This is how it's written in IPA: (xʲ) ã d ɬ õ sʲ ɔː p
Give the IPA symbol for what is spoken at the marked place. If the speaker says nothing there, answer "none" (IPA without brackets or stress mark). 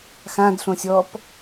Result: x